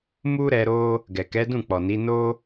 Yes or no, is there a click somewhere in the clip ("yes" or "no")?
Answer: no